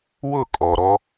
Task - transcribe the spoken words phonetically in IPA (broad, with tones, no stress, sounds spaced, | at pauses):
w ʊ˦˨ kʼ ɔ˨ ɾ ɔ˦